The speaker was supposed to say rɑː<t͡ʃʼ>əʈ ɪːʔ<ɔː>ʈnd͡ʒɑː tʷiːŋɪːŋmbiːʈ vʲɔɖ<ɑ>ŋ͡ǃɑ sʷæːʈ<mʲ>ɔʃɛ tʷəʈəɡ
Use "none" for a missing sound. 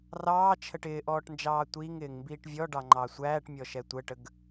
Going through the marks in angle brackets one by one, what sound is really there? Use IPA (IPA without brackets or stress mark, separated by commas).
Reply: t͡ʃʰ, ɔː, ɑ, mʲ